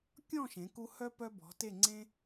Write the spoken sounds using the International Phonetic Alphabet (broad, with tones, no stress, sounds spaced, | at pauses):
kʲ ɔ̃˥˧ ʃ ẽ˩˧ k u˧ h œ˥ p œ˧ b ɔ̤˩˧ t e˧˩ ŋ͡ǀ ẽ˧